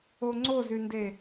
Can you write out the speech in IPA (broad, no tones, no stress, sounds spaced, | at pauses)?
o ŋ͡ǀ o z y n d e